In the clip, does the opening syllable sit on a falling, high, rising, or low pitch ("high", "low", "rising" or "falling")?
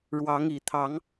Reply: rising